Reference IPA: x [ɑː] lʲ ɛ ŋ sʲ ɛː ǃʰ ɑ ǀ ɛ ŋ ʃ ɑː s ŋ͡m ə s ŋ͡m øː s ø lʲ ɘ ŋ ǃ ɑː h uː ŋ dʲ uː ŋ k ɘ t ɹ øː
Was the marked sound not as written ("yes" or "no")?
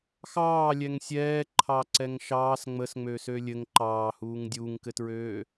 no